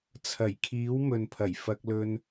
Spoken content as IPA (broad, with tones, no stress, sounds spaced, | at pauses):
t͡sʰ ɐ˨˩ j kʰ iː˨˥ w m ɵ˨ n pʰ ɐ˨˩ j f ɐ˧ k̚ l ɵ˧ n